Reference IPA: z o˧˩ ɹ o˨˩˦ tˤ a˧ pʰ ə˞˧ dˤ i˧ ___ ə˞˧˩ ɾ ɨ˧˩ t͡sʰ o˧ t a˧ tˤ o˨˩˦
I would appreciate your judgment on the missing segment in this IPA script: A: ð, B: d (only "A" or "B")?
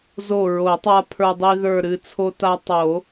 A